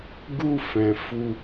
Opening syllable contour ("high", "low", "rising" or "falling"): high